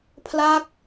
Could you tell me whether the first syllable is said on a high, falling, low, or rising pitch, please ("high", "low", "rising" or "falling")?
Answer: falling